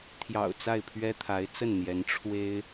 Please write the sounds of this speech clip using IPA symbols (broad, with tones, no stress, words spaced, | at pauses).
t̪ʰjɑ̰˨˩ʊ̯ t͡sa˥˩ɪ̯pʰɥɛ˥t̪ʰa˧˥ɪ̯ t͡sə˥˩nn̪jɛ˧˥n ʈ͡ʂʰwe˥ɪ̯